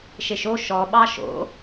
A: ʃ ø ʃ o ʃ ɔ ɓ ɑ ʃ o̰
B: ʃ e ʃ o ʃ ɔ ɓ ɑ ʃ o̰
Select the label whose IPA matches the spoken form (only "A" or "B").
B